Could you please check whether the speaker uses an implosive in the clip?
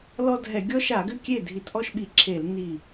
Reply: yes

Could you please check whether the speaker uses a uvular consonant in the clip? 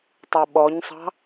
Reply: no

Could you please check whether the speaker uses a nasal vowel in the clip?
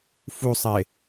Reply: no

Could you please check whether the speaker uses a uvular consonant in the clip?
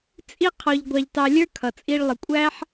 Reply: yes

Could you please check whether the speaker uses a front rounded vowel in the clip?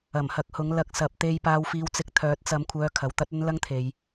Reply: yes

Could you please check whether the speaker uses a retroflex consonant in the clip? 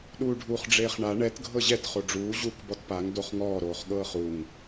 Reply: yes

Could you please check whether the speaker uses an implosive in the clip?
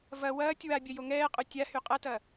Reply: no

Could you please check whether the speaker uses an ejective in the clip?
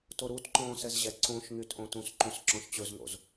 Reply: no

